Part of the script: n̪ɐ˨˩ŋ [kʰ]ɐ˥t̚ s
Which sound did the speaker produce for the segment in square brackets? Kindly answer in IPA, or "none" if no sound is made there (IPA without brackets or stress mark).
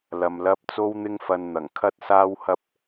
kʰ